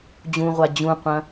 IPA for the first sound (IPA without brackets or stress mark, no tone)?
d͡ʑ